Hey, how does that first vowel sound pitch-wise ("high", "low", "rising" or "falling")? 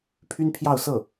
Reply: high